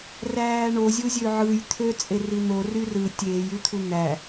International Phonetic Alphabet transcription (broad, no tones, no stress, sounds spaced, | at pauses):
r æː ɳ o zʲ u zʲ ø ʕ ɯ j t̪ʰ ø t͡sʼ e r i n̪ o r y r ɯ tʲ eː j y t̪ʰ u n̪ æ